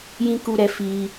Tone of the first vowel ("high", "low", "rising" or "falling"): high